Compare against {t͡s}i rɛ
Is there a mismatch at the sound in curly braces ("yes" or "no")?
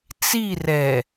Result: no